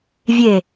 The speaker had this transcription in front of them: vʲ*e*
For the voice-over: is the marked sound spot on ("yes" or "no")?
yes